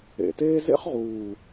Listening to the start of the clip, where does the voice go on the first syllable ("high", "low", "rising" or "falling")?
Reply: low